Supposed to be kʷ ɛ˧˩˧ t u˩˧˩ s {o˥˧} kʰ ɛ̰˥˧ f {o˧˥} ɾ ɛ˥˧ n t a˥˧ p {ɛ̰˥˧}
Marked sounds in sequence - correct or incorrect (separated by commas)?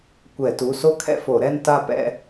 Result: correct, incorrect, correct